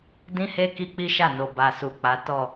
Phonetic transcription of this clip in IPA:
d ĩ˦ h e˦ k i˦ k͡p i˦ ʃ a˦˨ n o˨ b a˨ s u˨ k͡p a˨˦ t ɔ˦˨

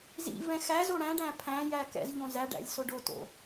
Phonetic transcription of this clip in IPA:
z ḭ v ɛ̃ x æ z o ɽ æ̃ ɖ æ̃ pʰ æ̃ j æ k ɛ̰ z ʎ õ z æ ɖ æ̰ lʲ s o ɖ o t o̰

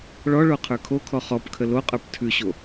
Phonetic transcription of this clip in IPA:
ɭ ɔ ɭ o qʰ ə˞ kʰ o kʰ ɔ χ ɔ p kʰ ə l o qʼ ə˞ p tʰ ʉ ɕ o

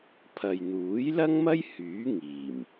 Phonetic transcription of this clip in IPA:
pʰ ɐ˨ j n̪ uː˨˥ j l ɐ˥ ŋ m ɐ˥ j h yː˨˥ ŋ iː˨˩ m

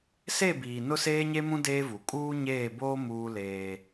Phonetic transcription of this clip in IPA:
s e˦˨ b iː˨ n ʊ˦ s eː˦ ɲ e˦ m ũ˦ d eː˦ v u˨ kʼ uː˦ ɲ eː˦˨ b oː˦ m uː˦ l eː˦

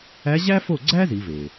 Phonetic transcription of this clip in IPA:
æ˧˥ ʑ æ˥ f o˥˩ ɡ͡ǀ æ˥ z i˩˧ v e˩

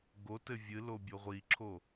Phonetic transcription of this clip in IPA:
ɡ o t ɘ vʲ ɨ l o bʲ o ʁʷ i ǁʰ o

